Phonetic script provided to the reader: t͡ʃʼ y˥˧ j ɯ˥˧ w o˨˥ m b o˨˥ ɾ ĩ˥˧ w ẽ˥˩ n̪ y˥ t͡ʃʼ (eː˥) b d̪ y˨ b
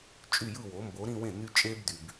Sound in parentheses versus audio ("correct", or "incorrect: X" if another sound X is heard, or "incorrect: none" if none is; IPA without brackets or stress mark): correct